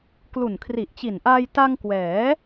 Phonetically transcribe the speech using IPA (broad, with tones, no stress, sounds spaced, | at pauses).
k l u˨˩ n kʰ r i˨˩ ʔ t͡ɕ i˨˩ n ʔ aː˧ j t a˧ ŋ k w ɛː˩˦